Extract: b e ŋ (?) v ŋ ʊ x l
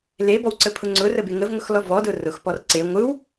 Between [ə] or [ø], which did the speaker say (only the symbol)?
ə